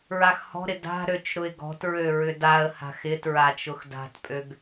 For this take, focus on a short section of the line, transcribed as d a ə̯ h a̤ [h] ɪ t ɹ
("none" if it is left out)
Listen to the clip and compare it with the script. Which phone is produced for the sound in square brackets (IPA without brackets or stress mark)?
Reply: x